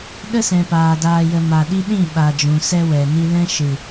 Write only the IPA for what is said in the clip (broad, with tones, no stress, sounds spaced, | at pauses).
ɗ ə˦ s ɛ̃˨ p aː˨ d aː˨ j ə˨ m a˨ ɗ i˧ ɗ ĩ˦˨ ɓ a˨ d͡ʒ ũ˨ s ɛ˧ w ɛ˨ n i˧ l ɛ̃˦ ʃ ɨ˨